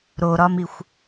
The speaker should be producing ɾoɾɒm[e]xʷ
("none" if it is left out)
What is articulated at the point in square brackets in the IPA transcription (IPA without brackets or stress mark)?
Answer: i